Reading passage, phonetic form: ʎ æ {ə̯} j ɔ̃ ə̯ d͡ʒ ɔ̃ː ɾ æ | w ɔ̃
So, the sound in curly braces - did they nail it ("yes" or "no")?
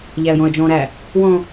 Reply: yes